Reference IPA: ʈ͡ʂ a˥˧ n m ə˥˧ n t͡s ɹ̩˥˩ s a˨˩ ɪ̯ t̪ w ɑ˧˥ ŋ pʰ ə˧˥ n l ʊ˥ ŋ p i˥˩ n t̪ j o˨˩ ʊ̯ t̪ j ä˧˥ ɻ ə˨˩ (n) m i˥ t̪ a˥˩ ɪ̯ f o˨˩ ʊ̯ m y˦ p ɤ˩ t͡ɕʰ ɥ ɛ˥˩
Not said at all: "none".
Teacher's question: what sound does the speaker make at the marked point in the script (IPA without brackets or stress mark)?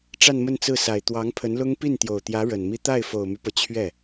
n